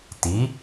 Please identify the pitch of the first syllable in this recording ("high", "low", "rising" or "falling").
rising